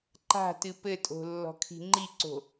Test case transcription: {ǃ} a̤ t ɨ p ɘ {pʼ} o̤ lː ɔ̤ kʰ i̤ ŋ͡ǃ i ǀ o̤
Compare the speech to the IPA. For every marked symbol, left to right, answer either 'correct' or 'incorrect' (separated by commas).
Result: correct, incorrect